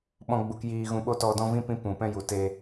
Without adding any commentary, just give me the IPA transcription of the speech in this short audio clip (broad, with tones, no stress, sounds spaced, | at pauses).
ɓ ɔ̃˧ ɡ͡b u˧ k j iː˧ ɣ ũ˧ ɓ o˦ t ɔ˧ d ɔ̃˦ v ĩ˦ p ĩ˦ p ũ˨ p ɛ̃˦ j u˨ t e˧